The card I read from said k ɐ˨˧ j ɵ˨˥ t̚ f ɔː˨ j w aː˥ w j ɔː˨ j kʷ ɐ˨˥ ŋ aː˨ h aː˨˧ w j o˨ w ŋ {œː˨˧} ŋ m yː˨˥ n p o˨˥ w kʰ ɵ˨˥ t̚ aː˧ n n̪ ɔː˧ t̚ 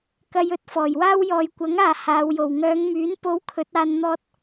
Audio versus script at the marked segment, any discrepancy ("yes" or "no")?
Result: no